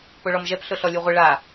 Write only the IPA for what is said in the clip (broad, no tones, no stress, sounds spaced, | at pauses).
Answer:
p o ɭ ɔ m ʒ ɛ p ɬ ʊ ɬ ɔ lʲ u ʁʷ ɪ ɭ a